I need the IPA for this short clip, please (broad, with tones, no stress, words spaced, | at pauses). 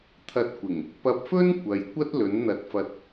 t̪ʰɐ˧t̚kʷɪ˨˩ŋ | pɐ˧p̚fɵ˥n kʷɐ˨j kʷɐ˥t̚lɵ˨˥n n̪ɐ˨t̚fɐ˨t̚